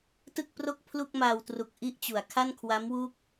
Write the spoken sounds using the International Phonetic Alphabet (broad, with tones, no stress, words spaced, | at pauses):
tɯ˥˩k̚pro˥˩k̚ pʰlu˥˩k̚maː˧wtru˨˩k̚ ʔi˥˩ʔt͡ɕu˩˦a̯ kʰa˥˩nkʰwa˦˥mwu˦˥k̚